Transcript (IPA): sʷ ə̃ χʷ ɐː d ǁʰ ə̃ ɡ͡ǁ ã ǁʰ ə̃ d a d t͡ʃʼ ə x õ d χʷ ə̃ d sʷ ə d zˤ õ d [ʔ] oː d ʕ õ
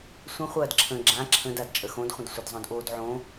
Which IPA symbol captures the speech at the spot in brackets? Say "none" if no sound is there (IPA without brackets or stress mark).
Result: ʔ